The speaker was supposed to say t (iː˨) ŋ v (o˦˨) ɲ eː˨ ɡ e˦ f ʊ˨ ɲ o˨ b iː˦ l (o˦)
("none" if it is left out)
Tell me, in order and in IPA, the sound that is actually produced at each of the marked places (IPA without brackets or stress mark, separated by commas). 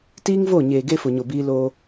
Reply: iː˦, o˦˨, oː˦